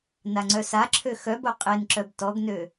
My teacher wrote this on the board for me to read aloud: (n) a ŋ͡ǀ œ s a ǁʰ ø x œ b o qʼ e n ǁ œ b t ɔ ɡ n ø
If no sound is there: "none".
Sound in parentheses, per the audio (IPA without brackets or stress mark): n